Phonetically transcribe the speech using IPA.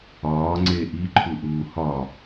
ɒːŋ͡ǀeː ʔiǃʰuʔuː hɒ

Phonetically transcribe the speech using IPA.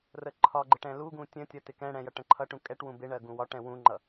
rəǃʰɒɡ͡ǃɪʈ ɛ̃luɡũ tʲə̃tʲʌ tɪkɛ̃ɽɛ̃ jʌʈə̃ǃʰʌʈũ kʼɛʈwũ bɪɳɜ ɡũwɒʈɛ̃ wũŋ͡ǃʌ

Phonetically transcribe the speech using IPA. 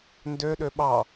ndøɗø ɓɑ

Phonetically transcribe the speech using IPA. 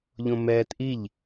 ʎõmɛːtʔiʎ

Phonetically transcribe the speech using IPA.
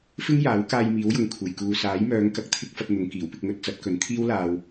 fɪ˥ŋjaː˨˥w kaː˧jmiː˨˥wjʊ˨ŋ kʷʰe˨˩jkuː˨ saː˨˥jmœː˨˧ŋ kɐ˧k̚t̪ʰɪ˥k̚fɐ˧t̚n̪ʊ˨˧ŋ kiː˨˩wpɪ˧k̚ŋɵ˧t̚ t͡sɐ˨˥t̚kɵ˨˥n t̪ʰiː˥wlaː˧w

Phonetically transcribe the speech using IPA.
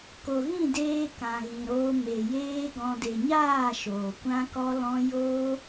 ko˨ɣĩ˦˨deː˧ kã˨ɣĩ˨ɾoː˧ me˨jeː˦ɡɔ̃˧ de˨ɲaː˦˨ ʃoː˨kʷã˦kɔ˦lɔ̃˦ joː˦

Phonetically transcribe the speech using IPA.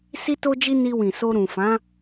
si˦to˦d͡ʒi˦ ni˧wĩ˨so˧ ɾũ˨fã˨˦

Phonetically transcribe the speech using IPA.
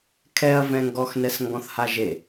kʰɛɐ̯vɛ̃ŋɡɔxnɛs ŋɡɔ̃θhaʒe

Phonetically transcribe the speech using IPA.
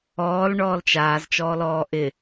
ɔːl ɳɔːlt͡ʃaːz t͡ʃɔːlɔːʔɪ

